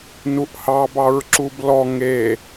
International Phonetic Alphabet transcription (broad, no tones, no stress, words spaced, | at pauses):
nuʔhɑ bɑɹǁublɔ ŋe